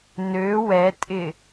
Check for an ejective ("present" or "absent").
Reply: present